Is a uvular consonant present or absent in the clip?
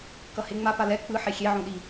absent